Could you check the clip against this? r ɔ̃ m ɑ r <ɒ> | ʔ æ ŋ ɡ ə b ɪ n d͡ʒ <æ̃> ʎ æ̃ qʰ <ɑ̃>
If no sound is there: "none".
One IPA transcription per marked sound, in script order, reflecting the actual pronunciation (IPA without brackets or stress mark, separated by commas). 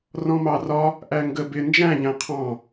ɒ, æ̃, ɑ̃